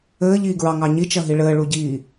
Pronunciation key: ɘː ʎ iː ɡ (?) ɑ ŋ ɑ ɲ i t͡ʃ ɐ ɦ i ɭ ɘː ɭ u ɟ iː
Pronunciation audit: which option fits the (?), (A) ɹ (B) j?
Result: A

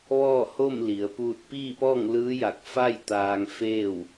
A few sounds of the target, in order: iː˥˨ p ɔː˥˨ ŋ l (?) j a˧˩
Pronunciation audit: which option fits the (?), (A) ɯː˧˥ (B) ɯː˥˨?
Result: A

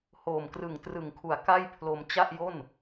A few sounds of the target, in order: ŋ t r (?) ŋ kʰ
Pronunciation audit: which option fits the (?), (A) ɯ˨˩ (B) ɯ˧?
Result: A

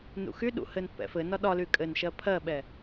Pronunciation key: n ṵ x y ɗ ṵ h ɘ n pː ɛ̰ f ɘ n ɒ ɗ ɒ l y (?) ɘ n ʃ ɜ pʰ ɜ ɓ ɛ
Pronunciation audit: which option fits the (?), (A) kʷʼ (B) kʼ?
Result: B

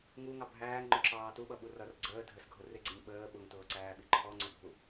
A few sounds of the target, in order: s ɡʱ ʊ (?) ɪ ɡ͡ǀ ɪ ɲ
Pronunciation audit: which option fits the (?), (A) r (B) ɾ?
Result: A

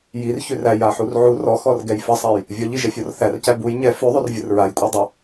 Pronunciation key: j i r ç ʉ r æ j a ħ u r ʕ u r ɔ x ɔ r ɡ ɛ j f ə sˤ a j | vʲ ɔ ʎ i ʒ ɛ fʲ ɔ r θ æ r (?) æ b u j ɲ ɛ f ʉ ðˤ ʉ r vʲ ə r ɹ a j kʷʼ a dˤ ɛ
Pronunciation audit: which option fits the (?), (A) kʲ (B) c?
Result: B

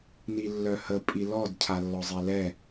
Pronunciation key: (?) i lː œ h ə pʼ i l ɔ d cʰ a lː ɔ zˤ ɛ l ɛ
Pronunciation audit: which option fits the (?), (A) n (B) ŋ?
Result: A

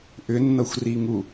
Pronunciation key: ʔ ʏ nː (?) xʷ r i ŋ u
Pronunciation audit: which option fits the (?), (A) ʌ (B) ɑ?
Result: A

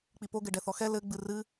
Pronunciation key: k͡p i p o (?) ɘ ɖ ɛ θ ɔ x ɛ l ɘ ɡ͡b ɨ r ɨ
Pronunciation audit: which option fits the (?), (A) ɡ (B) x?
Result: A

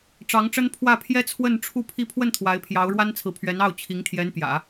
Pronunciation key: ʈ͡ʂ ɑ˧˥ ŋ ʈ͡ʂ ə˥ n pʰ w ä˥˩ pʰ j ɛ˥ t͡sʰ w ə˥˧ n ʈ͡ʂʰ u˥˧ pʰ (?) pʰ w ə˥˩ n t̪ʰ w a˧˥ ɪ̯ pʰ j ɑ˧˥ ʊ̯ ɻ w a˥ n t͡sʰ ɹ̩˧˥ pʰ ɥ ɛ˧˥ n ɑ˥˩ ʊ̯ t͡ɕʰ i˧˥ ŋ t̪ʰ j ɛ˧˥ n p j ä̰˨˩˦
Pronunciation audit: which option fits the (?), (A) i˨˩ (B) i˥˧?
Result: B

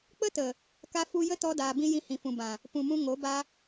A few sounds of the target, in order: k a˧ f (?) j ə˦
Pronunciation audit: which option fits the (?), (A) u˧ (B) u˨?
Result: A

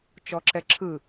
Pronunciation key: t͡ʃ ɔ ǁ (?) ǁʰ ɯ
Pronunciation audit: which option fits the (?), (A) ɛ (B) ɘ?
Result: A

